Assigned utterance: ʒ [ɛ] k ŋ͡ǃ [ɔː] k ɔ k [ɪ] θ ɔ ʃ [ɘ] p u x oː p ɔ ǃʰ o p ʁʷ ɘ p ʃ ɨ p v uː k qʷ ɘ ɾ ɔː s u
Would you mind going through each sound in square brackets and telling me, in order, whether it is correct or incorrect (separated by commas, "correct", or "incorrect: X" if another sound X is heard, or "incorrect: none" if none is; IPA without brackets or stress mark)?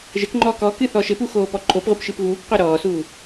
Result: incorrect: ɘ, correct, incorrect: ɨ, correct